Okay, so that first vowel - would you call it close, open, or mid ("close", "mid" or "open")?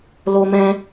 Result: mid